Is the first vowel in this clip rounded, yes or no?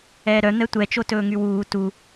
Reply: no